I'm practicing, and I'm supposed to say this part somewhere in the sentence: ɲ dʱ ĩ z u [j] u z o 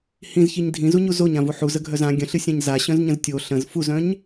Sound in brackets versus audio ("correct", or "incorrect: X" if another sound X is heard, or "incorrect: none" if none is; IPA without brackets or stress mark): incorrect: ɲ